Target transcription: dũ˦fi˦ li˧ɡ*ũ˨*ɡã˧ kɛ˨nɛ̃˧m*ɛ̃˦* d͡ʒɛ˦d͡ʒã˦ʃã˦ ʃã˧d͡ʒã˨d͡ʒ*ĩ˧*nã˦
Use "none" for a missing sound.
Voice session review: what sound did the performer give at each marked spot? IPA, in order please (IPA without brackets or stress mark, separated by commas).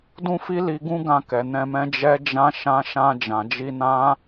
ũ˦, ɛ̃˦, i˧